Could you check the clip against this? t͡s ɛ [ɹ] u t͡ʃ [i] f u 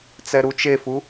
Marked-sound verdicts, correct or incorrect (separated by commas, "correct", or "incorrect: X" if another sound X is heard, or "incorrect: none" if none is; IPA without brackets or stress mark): incorrect: ɾ, incorrect: e